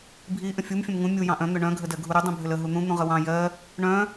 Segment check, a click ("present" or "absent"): absent